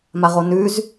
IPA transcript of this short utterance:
m a ʁ o n ʉ z

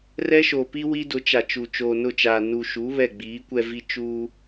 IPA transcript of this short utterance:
r ɛ˦ ʃ o˨ p i˦ w i˦ d ʊ˨˦ t͡ʃ a˨ t͡ʃ u˨ t͡ʃ oː˨ n ʊ˦˨ t͡ʃ aː˨ n u˨ ʃ u˨˦ β ɛ˦˨ ɡ͡b iː˨˦ kʷ ɛ˦ v i˦ t͡ʃ uː˦

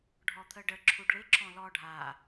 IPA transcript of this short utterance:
ɖʱ ɔ t̪ʰ ə ɖ ə ǁʰ u ɖ ɭ ɪ ǁʰ ɔ̃ l ɔ ɖʱ a

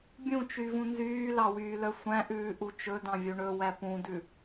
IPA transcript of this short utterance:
bʲ ũ t͡ʃ y v ũ n z yː l ɑ w yː l œ sʷ æ̃ ʔ ʉː ʔ u t͡ʃ ɵ d ɑ̃ vʲ u ɳ ɵ w æ p ũ d ʉ

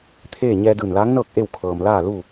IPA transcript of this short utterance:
t̪ʰ eː˥˨ ɲ ɛː˧ d ɯː˧˩ n l aː˧˥ ŋ n ɤː˥˨ k̚ ʔ e˥˨ w kʰ ɤː˩ m l aː˥˨ l u˥˨

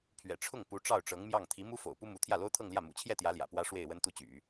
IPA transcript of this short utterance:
pʰ ɥ ɛ̰˨˩ ʈ͡ʂʰ ʊ˥˩ ŋ p u˧˥ ʈ͡ʂ ɑ˥˩ ʊ̯ ʈ͡ʂ ɤ˧˥ ŋ m j ɑ˥˩ ŋ t̪ʰ i˧˥ m u˥ f o̰˨˩ ʊ̯ p u˥ m u˧˥ t̪ʰ j ä˥˩ l o˥ ʊ̯ t̪ʰ ɤ˥˧ ŋ l j ä˥˩ m ṵ˨˩ t͡ɕʰ j ɛ˥˩ t̪ j ä˧˥ l j ä̰˨˩ p w ä˥ ʂ w e˥˩ ɪ̯ w ə˥ n t̪ u˥˩ t͡ɕ y̰˨˩˦

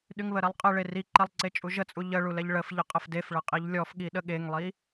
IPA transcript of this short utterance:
ɗ y ŋ β ə ɾ ɛ lˠ qʼ ə ɭ e r i ǃ ɛ lˠ ǀ e t͡ʃʼ u ʒ ə t͡sʼ u ʎ ə ɭ u l ɛ ʎ ɭ ə f ʎ ə qʼ ə f d e f ɭ ə qʼ i ʎ lʲ ɔ f ɠ i ɗ ə ɠ e ŋ lˠ i

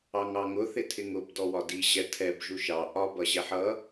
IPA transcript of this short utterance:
ɑ ŋ ɑ ŋ ʊ θ ɪ tʰ ɪ ŋ ʊ b d ɔ w ɒ d i ʑ ɛ tʰ ɛ b ʒ u ʃ ɑ ʔ ɒ b ʌ ʑ ɛ ħ ʌ

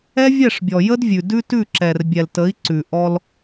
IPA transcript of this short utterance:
ɛ˦ vʲ ɛ˦˨ ʂ bʲ ɔ˨ j ə˦ d vʲ ʉ˨ d ʉ˦ t ʉ˦˨ ǁ ɛ˨ r bʲ ɛ˨ l t ə˨˦ i̯ ǀ ʉ˨ ʔ ɔ˦ l

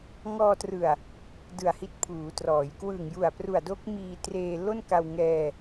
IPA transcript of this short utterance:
ŋ ɔː˧ t r ɯ˨˩ a̯ | d ɯ˨˩ a̯ h i˦˥ t̚ pʰ uː˩˦ t r ɔː˩˦ j k w ɯ˨˩ ŋ j u˨˩ a̯ p r u˨˩ a̯ d o˦˥ k̚ m iː˧ t r eː˧ l o˥˩ n k a˧ w ŋ ɛː˧

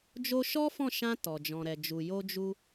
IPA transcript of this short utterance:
d͡ʒ o˧ ʃ ɔ˦ f ɔ̃˦˨ ʃ ã˧ t ɔ˨ d͡ʒ ɔ̃˨ ɾ ɛ˨ d͡ʒ u˨ j o˧ d͡ʒ u˧

